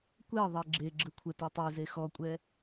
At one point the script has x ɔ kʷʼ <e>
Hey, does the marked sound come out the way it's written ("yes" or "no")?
no